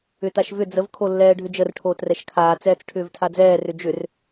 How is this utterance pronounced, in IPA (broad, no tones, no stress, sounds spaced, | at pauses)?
ʏ t a ʃ v ʏ d͡z ə v kʰ o lː ɛː ɖʱ ʏ d͡ʒ ə r ʈʰ oː t r ɛ ʃ kʰ aː t͡s ɛː t͡s ʈʰ ʏː v tʰ a d͡z ɛː r ʏ d͡ʒ ʏ r